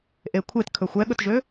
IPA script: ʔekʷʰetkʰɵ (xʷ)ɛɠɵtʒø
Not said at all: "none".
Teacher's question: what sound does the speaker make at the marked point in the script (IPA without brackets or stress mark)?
xʷ